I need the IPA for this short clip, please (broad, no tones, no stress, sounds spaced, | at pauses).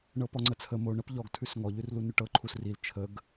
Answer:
ɳ ɤ p ɔ ŋ͡ǀ ə t͡sʰ ə m o ɳ ɤ p ʎ ɔ ɡ tʰ ʉ s ŋ ɔ ʎ ʉ r l u n ʉ ʈ ɤ ǃʰ u s r i l t͡ʃʰ ə ɡ